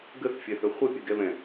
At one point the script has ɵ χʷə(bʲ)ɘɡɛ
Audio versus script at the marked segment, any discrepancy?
yes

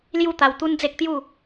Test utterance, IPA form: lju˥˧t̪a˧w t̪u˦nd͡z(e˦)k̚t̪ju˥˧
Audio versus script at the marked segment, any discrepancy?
no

